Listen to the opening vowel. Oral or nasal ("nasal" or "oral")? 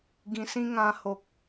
nasal